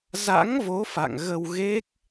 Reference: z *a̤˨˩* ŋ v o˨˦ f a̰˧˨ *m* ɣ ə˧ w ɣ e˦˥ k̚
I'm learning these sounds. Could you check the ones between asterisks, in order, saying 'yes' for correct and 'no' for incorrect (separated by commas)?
no, no